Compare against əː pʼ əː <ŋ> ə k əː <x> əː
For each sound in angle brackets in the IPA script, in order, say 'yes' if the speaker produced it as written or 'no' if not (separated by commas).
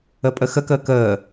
no, no